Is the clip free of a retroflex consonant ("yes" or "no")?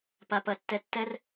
yes